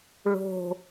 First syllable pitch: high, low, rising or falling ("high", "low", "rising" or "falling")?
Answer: low